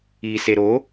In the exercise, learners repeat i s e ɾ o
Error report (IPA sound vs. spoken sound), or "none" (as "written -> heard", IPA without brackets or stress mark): none